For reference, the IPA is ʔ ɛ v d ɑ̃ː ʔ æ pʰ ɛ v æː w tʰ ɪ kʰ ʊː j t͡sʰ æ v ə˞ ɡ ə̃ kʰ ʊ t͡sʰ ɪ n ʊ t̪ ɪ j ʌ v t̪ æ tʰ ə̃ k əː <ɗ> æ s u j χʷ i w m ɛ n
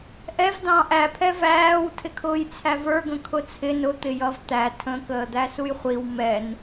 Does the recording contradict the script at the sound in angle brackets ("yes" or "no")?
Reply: yes